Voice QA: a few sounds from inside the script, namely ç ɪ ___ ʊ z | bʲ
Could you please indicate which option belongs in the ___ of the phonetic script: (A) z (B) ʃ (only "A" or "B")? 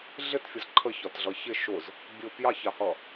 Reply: B